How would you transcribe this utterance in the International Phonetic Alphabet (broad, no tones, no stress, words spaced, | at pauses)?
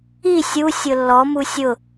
i sʲu sʲʊlːɔmu sʲʊ